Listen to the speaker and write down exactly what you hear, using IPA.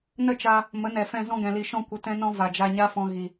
n ə˦˨ t͡ʃ a˧ | m ə˨˦ n ɛ˨ f ɛ̃˧ z ɔ̃˧ ɡ ɛ̃˨ l i˨ ʃ ɔ̃˧ kʷ ə˧ t ɛ̃˦ n ɔ̃˦ v a˨ d͡ʒ a˧ ɲ a˦ f ɔ̃˧ ɣ i˨

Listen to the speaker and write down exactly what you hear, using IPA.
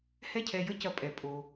h ɛ˥ cʰ ɛ˧ j ə˥ c ɐ˧ pʼ ɛ˩ pʼ o˩

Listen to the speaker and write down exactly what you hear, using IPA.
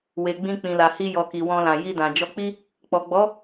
w e˨ ɡ͡b ĩ˧ k͡p ĩ˨ l a˨ h i˧ j ɔ˨ k i˨ w ɔ̃˧ l ã˨ j i˧ d ã˨ d͡ʒ ɔ˧ k͡p i˦ | k͡p ɔ˨ ɡ͡b ɔ˨˦

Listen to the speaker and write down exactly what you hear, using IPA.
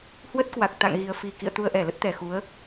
h w ə˦˥ t̚ k w a˨˩ k̚ t̪ a̰˧˨ ŋ ɣ i˨˩ ə̯ f i˨˩ k ḭ˧˨ ə̯ t̪ u˧ ə̯ ʔ ɛ˧˩ l ə˦˥ t̚ t̪ ɛ˨˩ x u˨˦ ə̯

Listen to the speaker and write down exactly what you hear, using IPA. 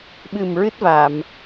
ɓ ɨ˨˩ m ɹ ɨ˦˥ t̚ v aː˨˩˨ m

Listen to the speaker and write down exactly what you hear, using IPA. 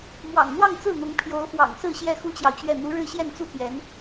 m w ɑ̰˨˩ ŋ n̪ w ɑ˥˧ ŋ t͡s ɹ̩˥˩ n̪ ʊ˧˥ ŋ pʰ j o˧˥ ʊ̯ f w ɑ̰˨˩ ŋ s ɹ̩˥˧ ɕ j ɛ˥˩ x u˥ t͡ɕ j ɑ˨ ʊ̯ t͡ɕ ɥ ɛ˥˩ n̪ u˧˥ ɻ ɻ̩˥˧ ɕ j ɛ˥˩ n t͡s u˥ p j ɛ˧˥ n

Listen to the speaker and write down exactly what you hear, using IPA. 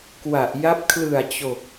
k w a˨˩ ʔ j a˦˥ p̚ kʰ l ɯ˨˩ a̯ t͡ɕ o˨˩ k̚

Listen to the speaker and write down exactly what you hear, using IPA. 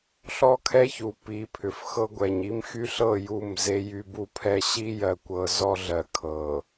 ɬ ɔ˦ kʰ ɛ˦ ç u˨ p i˨˦ pʰ ʏ˨ f x ɤ˦ ɡʷ ɛ˨ ɲ i˦ m x y˦ ɬ ɤ˦˨ j u˦˨ m z e˦ j y˦ b u˦ pʰ ɛ˦ ɕ i˦ j ɜ˨ kʷ ɤ˨ z ɔ˦ ɮ ɜ˨ kʰ ɤ˨

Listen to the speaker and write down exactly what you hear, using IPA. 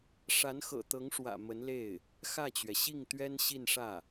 ʂ a˧˥ n x ɤ̰˨˩ t̪ ɤ˧˥ ŋ ʂ w ä̰˨˩ m ə˧˥ n l e˥˩ ɪ̯ | x ä˥˩ t͡ɕ ɥ ɛ˩ ɕ i˥˩ ŋ t̪ ɥ ɛ˥ n ɕ i˥˧ n ʂ ä˥˩

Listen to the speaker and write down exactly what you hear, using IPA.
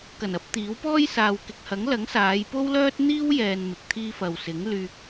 k ɐ˨˩ n ɐ˨˥ p̚ t̪ iː˨˥ w p ɔː˥ j s aː˨ w k ɪ˨ k̚ h ɐ˨˥ ŋ l ɐ˨˥ ŋ s aː˨˧ j p o˥ w l œː˥ t̚ n̪ iː˥ w j ɛː˨ n m ɪ˨ k̚ t̪ʰ iː˥ f ɐ˨ w s ɪ˨˥ ŋ l yː˧ k̚

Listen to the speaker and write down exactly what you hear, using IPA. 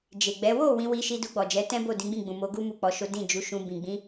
d͡ʒ e˨ ɡ͡b ɛ˨˦ w o˦˨ w ĩ˧ w i˧ ʃ i˧ d u˧ ɡ͡b ɔ˨ d͡ʒ ɛ˨˦ t ɛ̃˦ b o˦˨ d ĩ˨˦ ɡ͡b ĩ˦˨ ɡ͡b ũ˨ m o˨˦ ɡ u˦ m u˦˨ k͡p ɔ˨˦ ʃ o˦ d ĩ˦˨ d͡ʒ u˨˦ ʃ ũ˧ b ĩ˨ ɡ͡b ĩ˨˦

